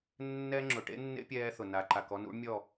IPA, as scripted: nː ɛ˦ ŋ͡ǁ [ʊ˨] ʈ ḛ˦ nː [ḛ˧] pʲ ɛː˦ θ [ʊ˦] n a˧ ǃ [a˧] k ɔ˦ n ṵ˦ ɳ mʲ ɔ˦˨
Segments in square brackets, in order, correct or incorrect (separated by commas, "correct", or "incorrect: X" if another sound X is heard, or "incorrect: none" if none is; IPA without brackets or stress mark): correct, incorrect: ḛ˦, incorrect: ʊ˨, correct